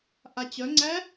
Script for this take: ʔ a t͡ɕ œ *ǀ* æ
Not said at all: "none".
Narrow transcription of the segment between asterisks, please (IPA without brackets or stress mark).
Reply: ŋ͡ǀ